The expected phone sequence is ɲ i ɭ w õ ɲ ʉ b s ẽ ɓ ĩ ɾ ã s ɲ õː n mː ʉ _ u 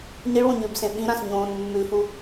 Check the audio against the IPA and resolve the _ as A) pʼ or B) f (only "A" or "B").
B